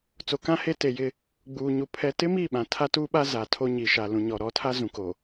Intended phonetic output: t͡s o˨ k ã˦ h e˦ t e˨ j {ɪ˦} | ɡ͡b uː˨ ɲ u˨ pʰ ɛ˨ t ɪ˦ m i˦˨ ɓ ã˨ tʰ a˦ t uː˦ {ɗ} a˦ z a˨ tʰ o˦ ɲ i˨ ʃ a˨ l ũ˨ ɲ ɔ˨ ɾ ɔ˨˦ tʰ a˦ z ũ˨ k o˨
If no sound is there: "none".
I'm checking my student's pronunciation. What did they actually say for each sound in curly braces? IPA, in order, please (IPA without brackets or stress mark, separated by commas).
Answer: ɪ˦, ɓ